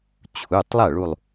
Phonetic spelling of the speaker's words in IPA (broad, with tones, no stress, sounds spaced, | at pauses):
t͡ɕʰ u˩˧˩ tˤ lˠ ɐ˥˩ ɭ u˧˩ lˠ